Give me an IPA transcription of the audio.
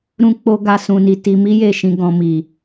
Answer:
ɾ ũ˧ k͡p o˧ ɡ a˧ s ũ˨ n i˨ t i˧ m i˦ j e˦˨ ʃ ĩ˧ ɡ ɔ̃˨ m i˨

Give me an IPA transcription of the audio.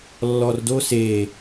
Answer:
lː ɔ r d o s e

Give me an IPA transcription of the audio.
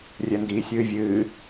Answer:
rʲ ɛ n d iː sʲ ɨː vʲ ɨː

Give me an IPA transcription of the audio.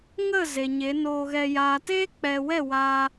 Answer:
ŋ ə˦˨ z e˨ ɲ e˨˦ n oː˧ ɣ ɛ˧ j aː˨ t eː˦ k͡p ɛ˨ w ɛ˦˨ w a˦

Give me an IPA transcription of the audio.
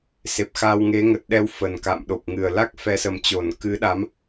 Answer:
s e˨˩ p̚ x a˧ w ŋ e˨˦ ŋ ə˨˩ t̚ ɗ ɛ˧ w f ə˨˩ n k a̰ː˧˨ m ɗ o˨˩ p̚ ŋ ɨ˨˩ ə̯ l a˦˥ k̚ f ɛ˨˦ s ə˨˩ m t͡ɕ o˧˩ n k ɨ˨˦ ɗ a˨˦ m

